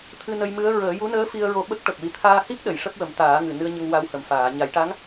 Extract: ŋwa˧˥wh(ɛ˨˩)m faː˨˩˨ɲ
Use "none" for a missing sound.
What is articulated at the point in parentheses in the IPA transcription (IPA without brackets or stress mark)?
ə˨˩